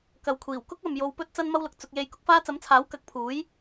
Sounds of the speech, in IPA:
k ɐ˨ w kʷʰ iː˨˩ w k ʊ˥ k̚ ɐ˨ m j o˧ w p ɵ˥ t̚ t͡s ɐ˥ n m ɐ˥ w l ʊ˨ k̚ t͡s ʊ˧ k̚ j e˧ j k ʊ˨˥ k̚ f aː˥ t͡s ɐ˨˥ m t͡sʰ aː˨˥ w k ɐ˨˥ k̚ pʰ uː˨˥ j

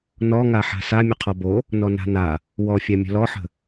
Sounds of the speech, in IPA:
n ɔ ŋ a ħ a̤ s a mʲ ə qʰ ɔ b o | n ɔ n a̤ n a | w ɔ fʲ a mʲ ə̤ l ɔ ħ ə̤

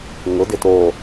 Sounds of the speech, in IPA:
ŋ ʊ d ɪ t o

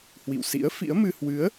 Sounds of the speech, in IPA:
h w ḭ˧˨ w s ḭ˧˥ ə̯ f ḭ˧˥ ə̯ m ɨ˧ h w ɨ˨˦ ə̯

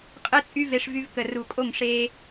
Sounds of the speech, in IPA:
qʼ ɯ˦ t͡sʼ y˦ v e˧ ʂ v y˧ v k ə˨ r u˨ kʼ o˦˨ ŋ ʂ e˧

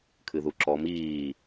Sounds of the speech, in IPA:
kʰ ɨ ð u ǁ ɔ m iː

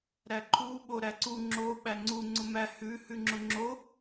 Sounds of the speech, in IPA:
ɾ æ ǃʰ u ɓ o ɾ æ ǀ u ŋ͡ǁ o ɓ æ ŋ͡ǀ u ŋ͡ǀ ʊ m æ h ʉ h ʉ ŋ͡ǁ ʊ ŋ͡ǁ o

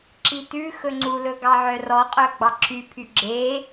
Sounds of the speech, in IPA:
ǁ i t ʉ x ɵ ŋ͡ǀ u l ɵ ɡ ɑ ʕ œ r ɔ qʼ œ ɡ͡b ɑ ǁʰ y pʰ y ɡ͡ǁ e

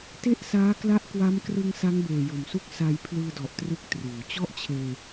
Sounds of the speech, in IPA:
t e˥˩ ʔ s aː˦˥ k l a˦˥ ʔ k w a˦˥ m k r ɯ˧ ŋ s a˦˥ ŋ b eː˨˩ j o˨˩ m s u˦˥ k̚ s a˧ j pʰ l ɯː˧ d ɔ˨˩ ʔ t r ɯ˥˩ k̚ t r uː˩˦ t͡ɕ ɔ˥˩ ʔ t͡ɕʰ eː˧

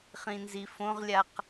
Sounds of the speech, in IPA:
χ ĩ n z i f õ ʁ lʲ a q

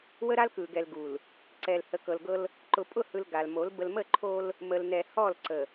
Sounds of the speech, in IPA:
w ə˦ ɾ a˦ l k ɯ˨ ɡ ɛ˨ l ɡ u˨ l | ǀ ɛ˨ l h ə˨ k ɤ˨ l ɡ ɤ˦ l | ǃ ʊ˨ pʼ ʊ˦˨ h ɯ˨ l ɡ a˨ l m o˨˦ l b ə˨ l m ə˦˨ ǃʰ o˦ l | m ə˨ l n ɛ˨ h ɔ˦˨ l ǀ ə˨

